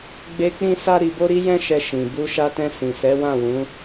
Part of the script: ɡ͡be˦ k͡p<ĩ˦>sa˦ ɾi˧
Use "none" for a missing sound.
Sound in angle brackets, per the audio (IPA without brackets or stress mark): ĩ˦